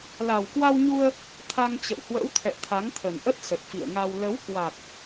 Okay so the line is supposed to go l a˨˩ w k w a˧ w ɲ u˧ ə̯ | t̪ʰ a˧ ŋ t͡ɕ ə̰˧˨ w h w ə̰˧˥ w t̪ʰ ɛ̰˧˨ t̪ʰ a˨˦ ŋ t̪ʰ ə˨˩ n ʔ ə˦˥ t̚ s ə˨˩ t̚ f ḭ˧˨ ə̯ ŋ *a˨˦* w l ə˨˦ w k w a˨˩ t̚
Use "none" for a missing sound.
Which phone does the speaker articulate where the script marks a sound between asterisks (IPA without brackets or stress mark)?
a˧